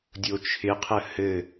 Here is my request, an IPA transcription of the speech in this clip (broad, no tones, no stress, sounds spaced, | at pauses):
dʲ o t͡ʃʰ ɪ qʰ ə h ɘ